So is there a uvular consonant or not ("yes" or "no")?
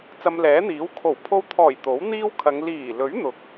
no